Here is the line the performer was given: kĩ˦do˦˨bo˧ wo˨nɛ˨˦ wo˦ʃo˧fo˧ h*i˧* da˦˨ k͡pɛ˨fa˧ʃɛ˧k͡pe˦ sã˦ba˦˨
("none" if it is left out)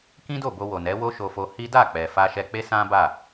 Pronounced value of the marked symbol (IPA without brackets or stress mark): i˦